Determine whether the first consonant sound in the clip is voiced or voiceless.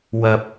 voiced